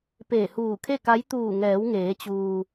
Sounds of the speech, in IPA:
p eː˧˩ h uː˧˩ kʰ e˥˨ k a˧˥ j t̪ uː˧˩ ŋ ɛː˩˧ w ŋ eː˩˧ t͡ɕ uː˩

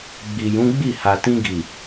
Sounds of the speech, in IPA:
ɡ͡b i˨ j ũ˨˦ ɡ͡b i˦˨ h a˨ t ĩ˧ ɡ i˨

